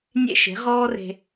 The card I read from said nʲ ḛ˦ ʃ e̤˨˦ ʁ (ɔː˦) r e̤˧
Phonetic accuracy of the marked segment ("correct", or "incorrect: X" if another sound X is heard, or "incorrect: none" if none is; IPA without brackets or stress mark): correct